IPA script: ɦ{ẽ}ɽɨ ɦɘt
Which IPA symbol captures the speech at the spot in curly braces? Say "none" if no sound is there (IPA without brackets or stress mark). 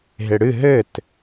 e